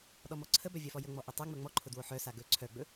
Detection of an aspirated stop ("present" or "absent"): present